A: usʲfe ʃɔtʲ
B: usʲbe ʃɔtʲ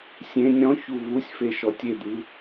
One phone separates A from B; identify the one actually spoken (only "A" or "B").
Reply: A